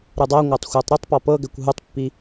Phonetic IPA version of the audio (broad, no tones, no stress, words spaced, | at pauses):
ɾɯdˤaŋʷatˤ xʷatˤɾutˤpɔ pɤɡɛkʷ ɦutˤpːi